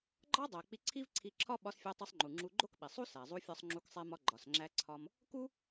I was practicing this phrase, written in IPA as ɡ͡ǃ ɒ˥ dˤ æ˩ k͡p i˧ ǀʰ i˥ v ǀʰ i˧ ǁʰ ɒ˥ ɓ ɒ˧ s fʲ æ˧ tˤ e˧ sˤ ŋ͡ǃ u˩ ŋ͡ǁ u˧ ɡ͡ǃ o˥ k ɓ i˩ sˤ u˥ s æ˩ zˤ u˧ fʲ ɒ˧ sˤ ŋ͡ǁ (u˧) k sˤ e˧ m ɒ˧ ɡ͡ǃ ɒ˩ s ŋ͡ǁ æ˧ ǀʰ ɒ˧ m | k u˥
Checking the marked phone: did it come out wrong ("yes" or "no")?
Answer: no